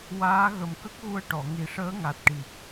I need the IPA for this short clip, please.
w aː˧˥ ɣ ə˨˩ m k ə˦˥ k̚ ɣ u˧ ə̯ ʈ ɔ˨˩˨ ŋ i˨˩ ʂ əː˧˥ ŋ a˨˩ t̚ ʈ i˨˩ k̚

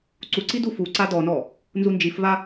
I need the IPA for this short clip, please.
ǀ u ǀ i d u f u ǀ a d ɔ n ɔ | n z u n d͡ʒ i f v a

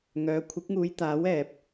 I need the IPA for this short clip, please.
ŋ œː˨˧ kʷʰ ɪ˨˥ k̚ ŋ uː˨˧ j t̪ aː˨˥ w ɛː˨ p̚

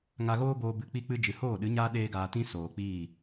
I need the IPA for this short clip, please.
ŋ a˧ ɣ oː˦ b oː˦ b ɨ˧ k͡p i˦ k͡p ɨ˦ d͡ʒ ɨ˨ h oː˦˨ ɗ ɨ˨˦ ɲ aː˦ ɗ eː˦ ɡ aː˧ t ĩ˦ s oː˨ k͡p iː˦˨

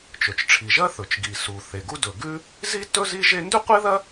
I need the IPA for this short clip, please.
t͡ʃ ɵ˩ t͡ʃ ʈ͡ʂʰ i˩ ʒ ɐ˥ θ ɵ˩ t͡ʃ ɡ i˩ s u˩ θ e˩ ɡ u˥ d ɵ˩ ɡ ʉ˥ | z i˥ t ɵ˥ z i˥ ʒ e˥ n d ʉ˥ qʷ e˥ ð ɐ˥

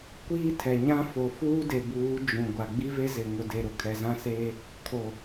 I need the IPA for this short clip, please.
kʷ iː˦ tʰ ɛ˨ ɲ ã˦ f o˨ f uː˦ d e˨ b uː˨˦ d͡ʒ ũ˨ ɡʷ a˨ ɡ͡b i˦ v e˦ z ɪ˨ ŋ ʊ˨ d e˨ ɾ ʊ˨ kʰ ɛ˨ z ã˦ s eː˦ | kʰ o˨

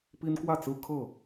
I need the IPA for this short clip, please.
p i˦ n k w ä˥˨ t͡s ɹ̩˦ kʰ ɤ˥˨

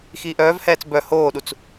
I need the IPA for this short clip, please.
x iː ʔ œː v h ɛː t͡s b œ h oː ɗ u t͡s

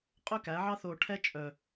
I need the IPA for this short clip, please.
qʼ ø˥ k æ˩˥ ʕ ɑ˥ θ o˧ ʈʰ ɛ˥ t͡ʃʼ œ˩

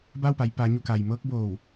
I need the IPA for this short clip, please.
b a˥˨ w p a˩˧ j p aː˩˧ ɲ u˧˩ k a˩ j m ɤː˧˥ k̚ b oː˧˩ w

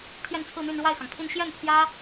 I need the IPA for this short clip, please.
t̪ʰ j ɛ˥˧ n t͡sʰ ɹ̩˥˧ n̪ y˥˧ n ɻ w a˥˩ ɪ̯ x ɑ˩ ŋ pʰ i˥˧ n ɕ j ɛ˥˩ n pʰ j ä˥

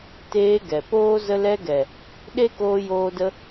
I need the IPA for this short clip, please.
t eː˧ ɡ ɛ˨ p oː˦ z ə˧ l ɛ˧ ɡ ɛ˨ | ɗ e˦ k oː˧ j oː˧ d ə˧

